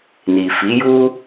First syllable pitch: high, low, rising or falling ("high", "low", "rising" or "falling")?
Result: low